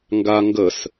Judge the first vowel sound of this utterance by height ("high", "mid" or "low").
low